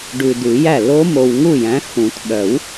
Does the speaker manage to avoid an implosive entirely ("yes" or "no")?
no